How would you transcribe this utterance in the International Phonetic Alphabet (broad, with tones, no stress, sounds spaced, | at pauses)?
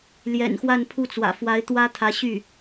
l j ɛ̰˨˩ n x w a˥˧ n pʰ u˥˩ t͡s w ä̰˨˩ f w a˧˥ ɪ̯ t̪ w ä˥ t̪ʰ ä˧˥ ɕ y˥˩